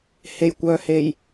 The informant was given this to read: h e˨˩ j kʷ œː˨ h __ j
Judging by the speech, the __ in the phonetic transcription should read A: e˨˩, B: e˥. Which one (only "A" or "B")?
A